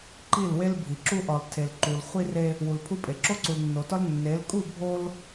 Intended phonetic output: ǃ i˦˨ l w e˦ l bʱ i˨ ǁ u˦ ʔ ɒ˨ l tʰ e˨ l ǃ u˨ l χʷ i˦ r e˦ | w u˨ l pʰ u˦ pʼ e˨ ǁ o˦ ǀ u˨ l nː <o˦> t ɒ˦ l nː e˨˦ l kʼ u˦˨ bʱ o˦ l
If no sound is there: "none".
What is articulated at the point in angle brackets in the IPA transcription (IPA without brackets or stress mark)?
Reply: o˨